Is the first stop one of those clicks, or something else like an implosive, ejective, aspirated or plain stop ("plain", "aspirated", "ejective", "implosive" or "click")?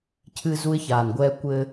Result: aspirated